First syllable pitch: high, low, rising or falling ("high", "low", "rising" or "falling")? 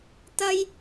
high